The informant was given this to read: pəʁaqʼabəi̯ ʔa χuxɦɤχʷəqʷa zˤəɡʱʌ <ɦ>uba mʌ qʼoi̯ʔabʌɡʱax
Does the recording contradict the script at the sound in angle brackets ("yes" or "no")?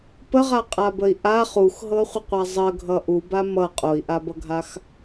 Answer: yes